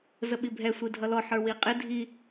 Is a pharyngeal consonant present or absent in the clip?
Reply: present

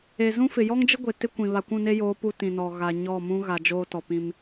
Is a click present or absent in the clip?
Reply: absent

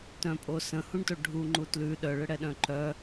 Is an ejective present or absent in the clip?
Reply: present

